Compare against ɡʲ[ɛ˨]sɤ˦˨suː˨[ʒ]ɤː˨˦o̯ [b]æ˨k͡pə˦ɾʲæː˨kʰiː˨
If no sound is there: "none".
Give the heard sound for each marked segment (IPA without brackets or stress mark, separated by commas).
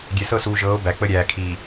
ɛ˨, ʒ, b